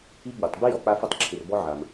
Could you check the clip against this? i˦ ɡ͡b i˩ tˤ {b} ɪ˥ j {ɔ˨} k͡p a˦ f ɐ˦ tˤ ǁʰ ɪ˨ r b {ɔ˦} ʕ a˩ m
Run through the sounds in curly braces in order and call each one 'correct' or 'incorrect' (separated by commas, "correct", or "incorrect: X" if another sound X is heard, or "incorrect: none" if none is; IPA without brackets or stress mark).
correct, correct, correct